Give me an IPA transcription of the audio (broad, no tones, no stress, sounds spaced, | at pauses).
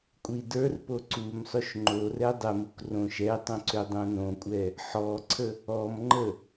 kʷʼ i d ə˞ r p o ǀ u m sˤ ø ʃ ŋ͡ǃ o r ɛ dˤ ɛ m u k r õ ʃ ɛ tˤ õ ǀ ø dˤ õ n õ kʷʼ ɛ | ħ ɔ ǀʰ ə | ɔ m ŋ͡ǃ ə